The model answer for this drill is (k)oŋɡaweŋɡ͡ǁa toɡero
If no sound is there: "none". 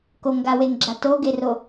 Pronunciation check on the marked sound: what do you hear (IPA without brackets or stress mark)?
k